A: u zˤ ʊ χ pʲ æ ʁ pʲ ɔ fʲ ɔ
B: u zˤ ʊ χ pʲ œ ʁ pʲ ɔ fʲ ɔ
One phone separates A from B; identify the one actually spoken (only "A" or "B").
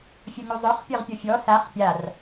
B